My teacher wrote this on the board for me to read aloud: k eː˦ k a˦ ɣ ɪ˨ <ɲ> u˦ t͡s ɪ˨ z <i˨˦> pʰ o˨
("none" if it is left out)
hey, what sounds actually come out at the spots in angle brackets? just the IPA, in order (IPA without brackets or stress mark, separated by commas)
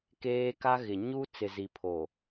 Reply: ɲ, i˨